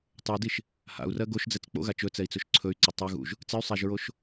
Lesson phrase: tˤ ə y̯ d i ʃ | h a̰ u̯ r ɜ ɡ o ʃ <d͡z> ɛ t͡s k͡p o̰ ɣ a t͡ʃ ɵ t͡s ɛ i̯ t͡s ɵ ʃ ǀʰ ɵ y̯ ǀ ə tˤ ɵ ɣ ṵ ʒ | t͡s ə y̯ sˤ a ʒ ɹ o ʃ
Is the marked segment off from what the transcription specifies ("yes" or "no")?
no